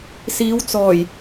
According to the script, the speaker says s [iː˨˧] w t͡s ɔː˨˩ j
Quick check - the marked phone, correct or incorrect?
correct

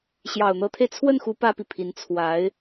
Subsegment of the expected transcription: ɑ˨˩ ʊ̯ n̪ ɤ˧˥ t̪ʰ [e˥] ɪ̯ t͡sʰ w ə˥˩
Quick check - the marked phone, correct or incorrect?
incorrect: e˧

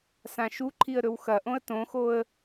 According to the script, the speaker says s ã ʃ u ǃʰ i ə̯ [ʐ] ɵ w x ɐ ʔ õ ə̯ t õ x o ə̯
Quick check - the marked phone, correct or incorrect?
incorrect: ɾ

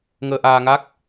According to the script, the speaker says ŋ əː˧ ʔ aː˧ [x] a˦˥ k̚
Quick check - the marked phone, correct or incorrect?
incorrect: ŋ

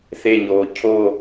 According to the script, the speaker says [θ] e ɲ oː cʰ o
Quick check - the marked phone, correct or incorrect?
correct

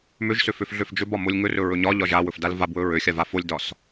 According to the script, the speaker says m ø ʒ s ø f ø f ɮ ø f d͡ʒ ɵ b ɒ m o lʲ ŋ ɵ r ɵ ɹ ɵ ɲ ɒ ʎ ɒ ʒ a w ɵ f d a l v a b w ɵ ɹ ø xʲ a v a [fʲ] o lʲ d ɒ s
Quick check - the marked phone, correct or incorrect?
incorrect: f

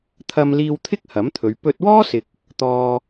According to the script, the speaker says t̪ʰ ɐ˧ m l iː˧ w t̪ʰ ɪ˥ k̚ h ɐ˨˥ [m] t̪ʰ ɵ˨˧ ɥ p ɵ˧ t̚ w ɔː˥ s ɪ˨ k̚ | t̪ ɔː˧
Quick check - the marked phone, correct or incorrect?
correct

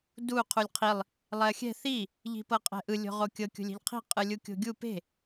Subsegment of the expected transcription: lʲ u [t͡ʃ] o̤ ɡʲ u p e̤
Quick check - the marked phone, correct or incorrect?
incorrect: kʲ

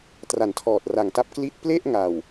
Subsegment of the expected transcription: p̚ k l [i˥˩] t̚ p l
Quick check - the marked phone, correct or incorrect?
correct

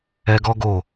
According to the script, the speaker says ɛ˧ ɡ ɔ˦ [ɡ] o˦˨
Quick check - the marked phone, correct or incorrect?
correct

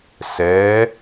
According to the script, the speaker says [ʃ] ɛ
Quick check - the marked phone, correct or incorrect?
incorrect: s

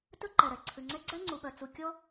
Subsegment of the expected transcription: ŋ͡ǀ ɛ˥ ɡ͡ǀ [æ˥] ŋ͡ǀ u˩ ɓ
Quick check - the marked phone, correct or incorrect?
correct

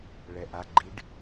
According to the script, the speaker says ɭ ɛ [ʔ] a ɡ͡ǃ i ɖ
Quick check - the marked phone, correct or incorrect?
correct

